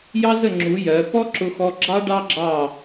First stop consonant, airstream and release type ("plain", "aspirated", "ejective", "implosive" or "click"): click